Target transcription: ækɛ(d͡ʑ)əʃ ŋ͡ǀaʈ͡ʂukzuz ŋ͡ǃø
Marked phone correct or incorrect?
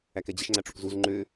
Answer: correct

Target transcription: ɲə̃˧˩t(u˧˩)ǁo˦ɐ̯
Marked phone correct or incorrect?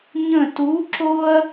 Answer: incorrect: u˨˥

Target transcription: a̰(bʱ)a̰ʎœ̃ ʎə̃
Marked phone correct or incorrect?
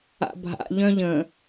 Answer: correct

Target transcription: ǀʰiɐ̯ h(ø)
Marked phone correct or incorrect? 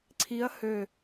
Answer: correct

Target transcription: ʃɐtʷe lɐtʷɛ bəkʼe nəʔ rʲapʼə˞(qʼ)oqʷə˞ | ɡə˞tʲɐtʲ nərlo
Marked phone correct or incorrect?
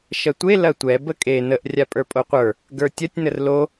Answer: incorrect: pʼ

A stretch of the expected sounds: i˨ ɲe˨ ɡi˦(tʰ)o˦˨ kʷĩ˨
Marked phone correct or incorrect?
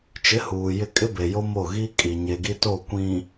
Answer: incorrect: t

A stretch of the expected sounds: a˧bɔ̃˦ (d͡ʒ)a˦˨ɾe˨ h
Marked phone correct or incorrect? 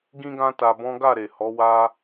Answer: incorrect: ɡ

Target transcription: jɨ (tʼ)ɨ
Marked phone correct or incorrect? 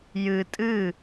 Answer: correct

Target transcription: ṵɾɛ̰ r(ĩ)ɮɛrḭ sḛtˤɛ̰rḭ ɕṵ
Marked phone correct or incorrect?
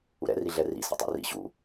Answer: incorrect: i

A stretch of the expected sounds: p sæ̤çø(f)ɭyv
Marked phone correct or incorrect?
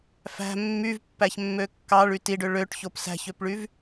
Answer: incorrect: p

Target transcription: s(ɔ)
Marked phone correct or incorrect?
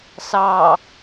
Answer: incorrect: ɑ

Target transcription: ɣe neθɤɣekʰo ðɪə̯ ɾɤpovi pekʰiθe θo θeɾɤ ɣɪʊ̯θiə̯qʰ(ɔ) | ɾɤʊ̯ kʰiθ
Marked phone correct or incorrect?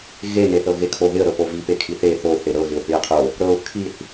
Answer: incorrect: o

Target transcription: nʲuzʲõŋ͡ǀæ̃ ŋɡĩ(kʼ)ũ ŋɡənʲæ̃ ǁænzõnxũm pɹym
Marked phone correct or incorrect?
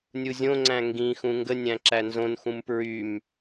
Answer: incorrect: x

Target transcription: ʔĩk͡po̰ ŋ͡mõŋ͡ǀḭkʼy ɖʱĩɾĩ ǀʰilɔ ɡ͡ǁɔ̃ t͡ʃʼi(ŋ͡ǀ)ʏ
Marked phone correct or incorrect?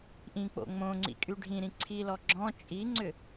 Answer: correct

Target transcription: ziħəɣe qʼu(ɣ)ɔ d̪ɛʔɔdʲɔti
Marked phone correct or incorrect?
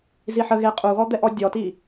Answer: correct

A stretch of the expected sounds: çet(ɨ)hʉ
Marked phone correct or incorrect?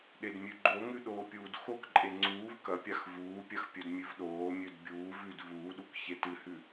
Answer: correct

